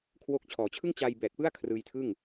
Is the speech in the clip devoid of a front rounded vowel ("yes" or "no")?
yes